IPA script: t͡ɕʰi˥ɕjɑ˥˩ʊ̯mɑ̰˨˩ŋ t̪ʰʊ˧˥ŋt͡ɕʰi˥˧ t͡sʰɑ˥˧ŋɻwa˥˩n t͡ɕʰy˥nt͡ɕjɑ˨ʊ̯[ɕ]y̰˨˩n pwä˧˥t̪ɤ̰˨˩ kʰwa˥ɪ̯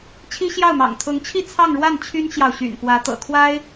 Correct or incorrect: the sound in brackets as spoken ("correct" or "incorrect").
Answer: correct